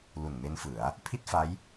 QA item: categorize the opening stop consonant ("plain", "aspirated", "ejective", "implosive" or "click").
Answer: aspirated